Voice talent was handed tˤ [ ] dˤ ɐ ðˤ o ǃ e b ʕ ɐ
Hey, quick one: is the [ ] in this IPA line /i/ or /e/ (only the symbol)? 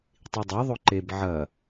i